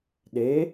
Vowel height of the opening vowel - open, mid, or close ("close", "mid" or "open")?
mid